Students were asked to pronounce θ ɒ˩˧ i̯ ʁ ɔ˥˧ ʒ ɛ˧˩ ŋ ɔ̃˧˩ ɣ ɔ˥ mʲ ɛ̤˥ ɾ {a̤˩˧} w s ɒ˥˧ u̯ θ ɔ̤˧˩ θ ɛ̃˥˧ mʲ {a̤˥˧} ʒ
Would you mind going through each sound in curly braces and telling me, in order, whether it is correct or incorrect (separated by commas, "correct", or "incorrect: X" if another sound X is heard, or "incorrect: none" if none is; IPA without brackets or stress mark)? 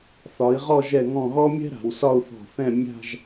correct, correct